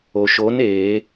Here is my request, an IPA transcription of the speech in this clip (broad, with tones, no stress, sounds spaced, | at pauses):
o˩ ʃ o˨˥ n e˨˩˦